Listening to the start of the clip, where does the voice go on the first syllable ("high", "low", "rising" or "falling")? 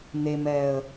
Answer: low